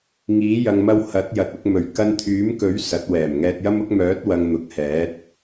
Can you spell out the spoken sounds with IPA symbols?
ŋ iː˨˥ j ɐ˨ ŋ m ɐ˧ w h ɐ˨˥ t̚ j ɐ˨ t̚ ʊ˧ k̚ m ɵ˨˩ ɥ k ɐ˧ n t̪ʰ yː˨˥ m k ɵ˨˥ ɥ s ɐ˨˥ t̚ w ɛː˨˩ m ŋ ɛː˧ t̚ j ɐ˥ m ʊ˥ k̚ m œː˨˥ t̚ w ɐ˨ ŋ n̪ ʊ˨ k̚ h ɛː˨˥ t̚

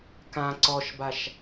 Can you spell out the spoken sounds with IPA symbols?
k ã ǀ ɔ ʃ b a ʃ

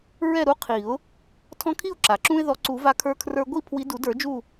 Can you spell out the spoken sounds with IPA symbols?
ɹ ɛ˥˨ ɾ u˦ qʰ i˨˩˦ ʊ̯ | tʰ ɔ̃˦ kʰ i˥˨ ʊ̯ ǁ a˩ ǁ ũ˦ ɪ̯ ð ɔ˨˦ ǀ u˨˩˦ v a˦ kʰ ə˞˦ kʰ r ə˞˦ ɡʷ i˥˨ pʰ w i˨˦ d u˨˩˦ d ə˞˨˩˦ d͡ʒ u˥˨

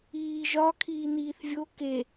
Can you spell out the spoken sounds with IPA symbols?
iː ʒ ɒ kʰ iː n̪ iː θ vʲ o k e

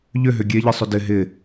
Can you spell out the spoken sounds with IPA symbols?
ʎ ʏ ɦ ʏ ɡʲ e ʎ ɨ sˤ ʏ d ɪ ɦ ɪ

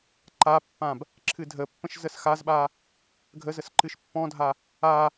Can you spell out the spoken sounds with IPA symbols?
ǃ a pː ã b | ǁʰ ɨ dʱ ə pː ə̃ ʃ z ə s x a z ɓ a | ɡʱ ə z ə s ǃ ɨ ʃ pː ɔ̃ dʱ a | a

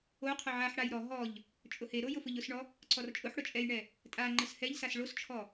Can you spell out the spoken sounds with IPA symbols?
o qʰ ʊ ʕ a ħ ɽ a j ɾ ɔ ɦ ɔ ʎ | t͡ʃʼ ʊ h e ɾ o j ʊ f ʊ ʎ ʊ s ɳ ɔ | ǀ ɔ r t͡ʃʼ ʊ ħ ɽ ʊ t͡ʃʼ ɛ j ɳ ɛ | tʼ a ŋ͡ǃ ə s h ɛ ʎ s a s ɭ o s t͡ʃʰ ɔ

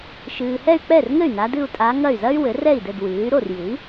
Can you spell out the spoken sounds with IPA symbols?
ʃ ɨː˨ h ɛ˥˧ y̯ k͡p ɛ˥˩ r ŋ ɘ˥˩ y̯ n a˧˥ d ɨ˥˧ u̯ tʼ a˧˥ ŋ ɐ˥˩ y̯ z ɐ˥ y̯ w ɘ˩˥ r ɛ˥˩ i̯ d ɘ˥˩ d w ɨː˩˥ y̯ ɾ o˥˩ r j ɨ˩˥ i̯

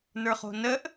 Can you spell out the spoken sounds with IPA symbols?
n ə˞ χ o̤ n ə ʔ

